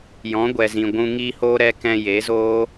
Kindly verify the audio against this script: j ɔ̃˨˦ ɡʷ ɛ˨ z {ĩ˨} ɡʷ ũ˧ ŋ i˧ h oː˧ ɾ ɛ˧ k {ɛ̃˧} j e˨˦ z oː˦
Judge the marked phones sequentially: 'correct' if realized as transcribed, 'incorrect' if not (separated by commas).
correct, correct